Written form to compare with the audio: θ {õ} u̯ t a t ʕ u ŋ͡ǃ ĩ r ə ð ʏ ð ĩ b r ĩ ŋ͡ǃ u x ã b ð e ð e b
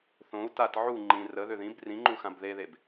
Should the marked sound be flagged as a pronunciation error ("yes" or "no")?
no